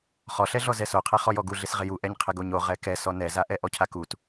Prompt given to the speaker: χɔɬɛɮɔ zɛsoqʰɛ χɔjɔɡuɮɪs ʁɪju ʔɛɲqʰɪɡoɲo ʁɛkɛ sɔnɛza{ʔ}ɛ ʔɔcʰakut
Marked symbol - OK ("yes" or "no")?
yes